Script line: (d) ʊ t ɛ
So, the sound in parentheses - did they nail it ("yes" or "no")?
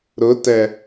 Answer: no